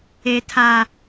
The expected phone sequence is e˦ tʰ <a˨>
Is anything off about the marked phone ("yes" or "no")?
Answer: yes